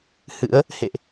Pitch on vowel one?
rising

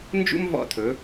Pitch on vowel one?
high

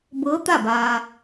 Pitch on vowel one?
rising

